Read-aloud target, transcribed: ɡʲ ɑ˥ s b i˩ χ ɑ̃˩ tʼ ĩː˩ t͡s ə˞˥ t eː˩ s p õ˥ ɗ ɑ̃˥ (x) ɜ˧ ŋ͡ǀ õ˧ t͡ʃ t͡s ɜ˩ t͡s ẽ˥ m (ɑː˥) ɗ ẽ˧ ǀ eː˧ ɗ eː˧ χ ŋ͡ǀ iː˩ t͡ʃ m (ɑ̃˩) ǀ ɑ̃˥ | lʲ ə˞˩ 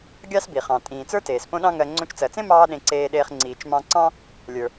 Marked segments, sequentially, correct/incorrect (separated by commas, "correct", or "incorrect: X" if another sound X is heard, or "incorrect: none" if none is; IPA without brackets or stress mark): incorrect: ŋ, correct, incorrect: ɑ̃˧